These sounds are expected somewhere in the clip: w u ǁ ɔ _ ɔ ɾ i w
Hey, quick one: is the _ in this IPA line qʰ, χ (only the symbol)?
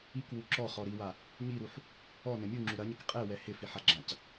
χ